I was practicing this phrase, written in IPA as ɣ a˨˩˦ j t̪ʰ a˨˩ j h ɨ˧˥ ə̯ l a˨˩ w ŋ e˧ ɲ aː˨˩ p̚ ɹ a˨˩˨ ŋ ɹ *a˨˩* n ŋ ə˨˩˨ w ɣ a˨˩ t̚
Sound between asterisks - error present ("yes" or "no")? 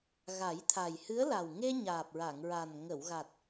no